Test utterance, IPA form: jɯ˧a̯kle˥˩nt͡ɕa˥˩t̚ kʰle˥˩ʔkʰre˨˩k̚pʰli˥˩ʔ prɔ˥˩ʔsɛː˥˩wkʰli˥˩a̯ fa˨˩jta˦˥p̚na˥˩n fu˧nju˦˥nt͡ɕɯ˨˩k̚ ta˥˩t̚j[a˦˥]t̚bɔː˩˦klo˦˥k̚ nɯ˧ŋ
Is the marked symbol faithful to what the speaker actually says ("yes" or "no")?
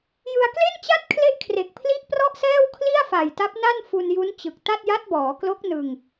yes